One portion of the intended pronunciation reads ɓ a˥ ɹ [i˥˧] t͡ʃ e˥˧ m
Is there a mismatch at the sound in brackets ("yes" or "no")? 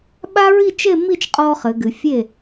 no